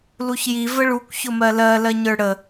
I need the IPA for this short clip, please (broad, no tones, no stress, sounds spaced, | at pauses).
l u ç j i v ə ɭ u kʷ ç ʊ m ɜ l ɜ l ɜ ɲ ə˞ ɽ ə